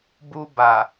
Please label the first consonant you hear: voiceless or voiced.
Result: voiced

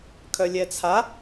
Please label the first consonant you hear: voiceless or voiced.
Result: voiceless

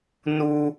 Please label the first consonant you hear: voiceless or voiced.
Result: voiced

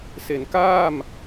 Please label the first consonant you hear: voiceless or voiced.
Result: voiceless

